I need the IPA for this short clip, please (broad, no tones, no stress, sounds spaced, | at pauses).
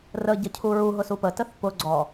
r ə ɟ ə cʰ u ɹ u ɦ ʊ s u p ə t ə θ p ʊ ɡ͡ǀ ɔ